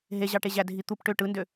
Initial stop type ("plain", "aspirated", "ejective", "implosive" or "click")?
plain